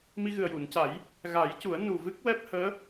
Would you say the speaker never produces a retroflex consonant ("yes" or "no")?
yes